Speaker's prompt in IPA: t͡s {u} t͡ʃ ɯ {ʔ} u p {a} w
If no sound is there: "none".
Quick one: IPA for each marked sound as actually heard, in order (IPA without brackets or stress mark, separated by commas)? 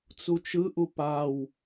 u, ʔ, a